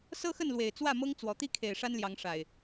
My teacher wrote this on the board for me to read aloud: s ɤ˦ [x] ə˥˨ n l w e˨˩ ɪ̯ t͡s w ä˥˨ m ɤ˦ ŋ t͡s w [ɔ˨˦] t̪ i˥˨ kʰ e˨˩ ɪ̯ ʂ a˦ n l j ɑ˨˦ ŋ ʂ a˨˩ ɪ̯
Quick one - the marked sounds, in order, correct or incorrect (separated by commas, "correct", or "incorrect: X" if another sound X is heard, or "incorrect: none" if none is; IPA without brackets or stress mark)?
correct, incorrect: ɔ˨˩